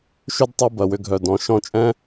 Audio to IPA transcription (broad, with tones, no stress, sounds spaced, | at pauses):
ʃ ʏ˦ d tˤ ʊ˧ b ɐ˨ w ʏ˧ ɡʱ œ˨ d ɔ̃˨ ʃ ɔ̃˧ t͡ʃʼ ɛ̃˦